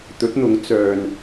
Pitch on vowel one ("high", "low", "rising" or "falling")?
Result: rising